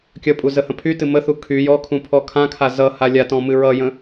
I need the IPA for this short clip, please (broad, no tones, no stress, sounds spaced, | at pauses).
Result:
kʲ ʌ pʼ u z ə h ə̃ pʰ y t ɨ m ə θ u kʰ y j ɔ kʰ ũ pʰ ɔ kʰ ã kʰ a z ʌ h a lʲ a t ɔ̃ m ɨ ɹ ʌ j ə̃